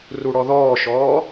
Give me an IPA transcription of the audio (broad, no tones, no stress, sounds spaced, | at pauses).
r u ɽ ɔ ð ɔː ʃ ɔː